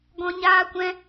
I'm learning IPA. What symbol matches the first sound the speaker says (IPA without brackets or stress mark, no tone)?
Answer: ɡ